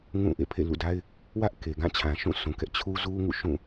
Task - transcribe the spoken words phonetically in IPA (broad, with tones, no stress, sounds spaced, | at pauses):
ŋ ũ˦˨ ʔ ḛ˦˨ pʰ ḛ˦˨ l ṵ˦˨ d a˦ ɪ̯ | w ä˦ ʔ k e˨ ɡ ã˦˨ t͡ɕʰ ã˨ ʃ ũ˦˨ sʰ ũ˨ k ɛ˦ ʔ t͡ɕʰ u˦ z u˦ ŋ ṵ˦˨ ʃ ũ˦˨